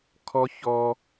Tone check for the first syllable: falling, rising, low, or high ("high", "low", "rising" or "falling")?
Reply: high